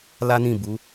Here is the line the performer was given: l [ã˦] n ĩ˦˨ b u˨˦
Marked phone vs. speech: incorrect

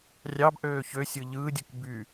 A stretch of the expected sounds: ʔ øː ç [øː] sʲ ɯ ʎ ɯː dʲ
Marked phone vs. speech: incorrect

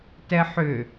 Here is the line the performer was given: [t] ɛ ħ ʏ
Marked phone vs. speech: correct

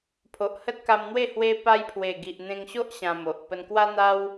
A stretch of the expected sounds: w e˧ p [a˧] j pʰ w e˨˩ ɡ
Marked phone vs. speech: correct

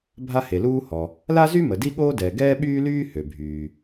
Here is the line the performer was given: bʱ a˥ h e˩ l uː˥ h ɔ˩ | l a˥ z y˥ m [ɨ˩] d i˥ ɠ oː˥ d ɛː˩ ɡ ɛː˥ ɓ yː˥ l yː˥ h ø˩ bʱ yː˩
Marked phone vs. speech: incorrect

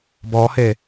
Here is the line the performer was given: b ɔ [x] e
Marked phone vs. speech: incorrect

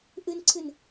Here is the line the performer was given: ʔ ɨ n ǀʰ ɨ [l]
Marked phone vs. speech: incorrect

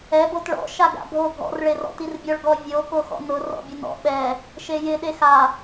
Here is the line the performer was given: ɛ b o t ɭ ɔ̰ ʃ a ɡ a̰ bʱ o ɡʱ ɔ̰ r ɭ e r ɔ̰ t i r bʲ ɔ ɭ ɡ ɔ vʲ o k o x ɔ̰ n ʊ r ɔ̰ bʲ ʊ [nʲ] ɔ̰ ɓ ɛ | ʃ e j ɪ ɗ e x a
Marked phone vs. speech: incorrect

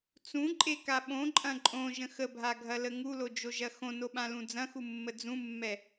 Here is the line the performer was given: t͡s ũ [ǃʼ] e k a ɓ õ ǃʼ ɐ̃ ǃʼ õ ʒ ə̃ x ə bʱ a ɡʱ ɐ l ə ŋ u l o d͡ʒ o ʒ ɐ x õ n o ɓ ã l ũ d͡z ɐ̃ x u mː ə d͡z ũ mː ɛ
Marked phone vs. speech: correct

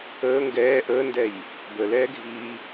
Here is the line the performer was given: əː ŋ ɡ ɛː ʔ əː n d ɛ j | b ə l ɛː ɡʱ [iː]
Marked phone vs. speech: correct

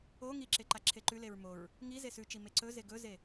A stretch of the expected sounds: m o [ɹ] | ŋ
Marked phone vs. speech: correct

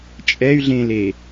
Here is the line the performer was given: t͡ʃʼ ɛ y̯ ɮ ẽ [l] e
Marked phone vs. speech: correct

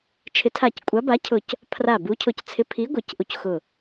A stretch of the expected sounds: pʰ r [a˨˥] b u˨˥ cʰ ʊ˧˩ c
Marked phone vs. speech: incorrect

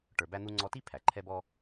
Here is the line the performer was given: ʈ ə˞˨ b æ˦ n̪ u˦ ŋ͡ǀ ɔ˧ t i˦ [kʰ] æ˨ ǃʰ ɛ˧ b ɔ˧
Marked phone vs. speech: incorrect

